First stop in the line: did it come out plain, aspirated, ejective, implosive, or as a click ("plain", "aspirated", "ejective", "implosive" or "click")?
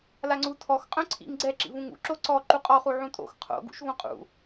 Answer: click